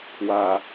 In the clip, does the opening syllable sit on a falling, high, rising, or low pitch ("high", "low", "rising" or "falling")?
low